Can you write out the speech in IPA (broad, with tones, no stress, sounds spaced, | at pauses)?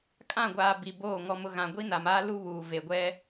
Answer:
kʼ ã˦˨ ɡʷ aː˨ b i˨ b oː˦˨ ŋ ɔ˨ m ʊ˨ ɣ ã˨ ɡʷ i˦ n a˨ m aː˦ l u˦ β uː˨ v e˨ ɡʷ ɛ˦